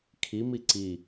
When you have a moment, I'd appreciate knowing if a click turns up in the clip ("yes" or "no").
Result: yes